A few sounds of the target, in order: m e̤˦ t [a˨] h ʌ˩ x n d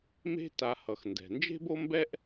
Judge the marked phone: correct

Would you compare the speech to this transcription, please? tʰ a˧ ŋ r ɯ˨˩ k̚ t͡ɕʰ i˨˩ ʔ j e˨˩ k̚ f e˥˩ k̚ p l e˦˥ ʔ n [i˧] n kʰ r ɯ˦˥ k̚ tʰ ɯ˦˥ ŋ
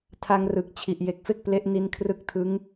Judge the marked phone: correct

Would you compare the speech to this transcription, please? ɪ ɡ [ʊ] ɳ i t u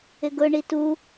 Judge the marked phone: correct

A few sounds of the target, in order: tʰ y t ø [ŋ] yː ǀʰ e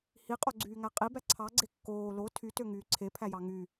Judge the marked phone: correct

